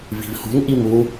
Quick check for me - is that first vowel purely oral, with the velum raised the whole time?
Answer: yes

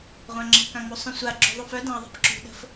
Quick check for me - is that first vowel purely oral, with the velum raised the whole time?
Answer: no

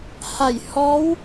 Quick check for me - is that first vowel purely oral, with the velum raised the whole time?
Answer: yes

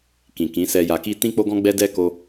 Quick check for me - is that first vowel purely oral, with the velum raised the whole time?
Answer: no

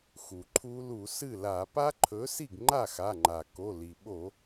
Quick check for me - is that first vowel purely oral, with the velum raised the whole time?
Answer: yes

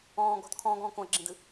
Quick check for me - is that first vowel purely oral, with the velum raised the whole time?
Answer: no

